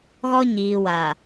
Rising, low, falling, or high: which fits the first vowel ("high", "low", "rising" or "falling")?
high